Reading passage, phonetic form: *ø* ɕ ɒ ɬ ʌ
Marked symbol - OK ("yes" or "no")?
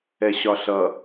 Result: no